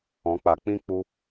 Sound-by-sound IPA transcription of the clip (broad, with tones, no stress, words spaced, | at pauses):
ɔ̃˨˦k͡pa˨ k͡pĩ˦k͡pu˧